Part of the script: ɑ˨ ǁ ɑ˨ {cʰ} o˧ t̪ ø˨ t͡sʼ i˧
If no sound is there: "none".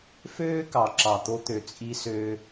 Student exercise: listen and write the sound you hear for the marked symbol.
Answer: t̪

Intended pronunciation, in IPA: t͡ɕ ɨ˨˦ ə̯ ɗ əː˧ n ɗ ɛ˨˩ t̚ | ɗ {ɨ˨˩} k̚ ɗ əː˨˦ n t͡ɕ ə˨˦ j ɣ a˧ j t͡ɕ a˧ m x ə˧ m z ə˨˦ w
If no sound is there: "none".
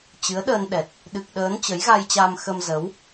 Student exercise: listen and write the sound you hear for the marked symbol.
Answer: ɨ˨˩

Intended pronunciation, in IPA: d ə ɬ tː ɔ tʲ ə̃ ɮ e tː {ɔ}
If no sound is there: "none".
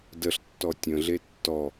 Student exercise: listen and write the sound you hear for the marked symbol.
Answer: ɔ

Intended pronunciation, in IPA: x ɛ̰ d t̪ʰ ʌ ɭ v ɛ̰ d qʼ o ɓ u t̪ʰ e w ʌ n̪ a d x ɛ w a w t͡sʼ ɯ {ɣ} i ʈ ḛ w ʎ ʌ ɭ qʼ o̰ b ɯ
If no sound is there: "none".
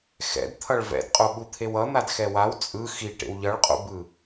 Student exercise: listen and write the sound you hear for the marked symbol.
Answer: x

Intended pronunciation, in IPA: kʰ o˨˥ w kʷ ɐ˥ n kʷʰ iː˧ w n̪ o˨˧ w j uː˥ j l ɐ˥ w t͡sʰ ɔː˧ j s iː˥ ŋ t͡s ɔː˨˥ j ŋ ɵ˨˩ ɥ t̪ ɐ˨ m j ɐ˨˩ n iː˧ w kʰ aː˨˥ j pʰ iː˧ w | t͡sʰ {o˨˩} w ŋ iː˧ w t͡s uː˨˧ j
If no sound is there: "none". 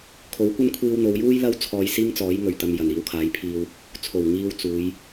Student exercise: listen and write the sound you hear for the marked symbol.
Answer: o˨˩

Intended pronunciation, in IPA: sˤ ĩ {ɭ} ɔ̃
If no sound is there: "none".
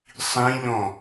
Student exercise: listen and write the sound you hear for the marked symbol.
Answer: ʎ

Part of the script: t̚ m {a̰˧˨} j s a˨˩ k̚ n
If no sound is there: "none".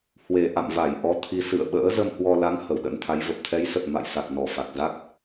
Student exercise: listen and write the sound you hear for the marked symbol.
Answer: a̰˧˨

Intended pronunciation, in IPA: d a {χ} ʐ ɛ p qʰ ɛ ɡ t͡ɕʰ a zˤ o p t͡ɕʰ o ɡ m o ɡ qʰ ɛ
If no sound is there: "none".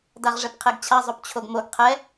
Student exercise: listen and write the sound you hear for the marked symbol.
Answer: ʁ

